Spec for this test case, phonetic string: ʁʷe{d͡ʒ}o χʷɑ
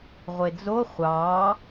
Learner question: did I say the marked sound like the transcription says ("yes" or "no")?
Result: no